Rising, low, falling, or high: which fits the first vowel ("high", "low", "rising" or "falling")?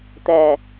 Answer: low